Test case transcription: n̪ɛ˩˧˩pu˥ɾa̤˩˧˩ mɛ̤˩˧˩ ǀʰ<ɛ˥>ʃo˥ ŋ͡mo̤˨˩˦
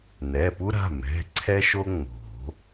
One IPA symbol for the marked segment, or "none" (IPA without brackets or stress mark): ɛ˥